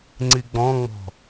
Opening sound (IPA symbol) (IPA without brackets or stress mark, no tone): ŋ͡ǀ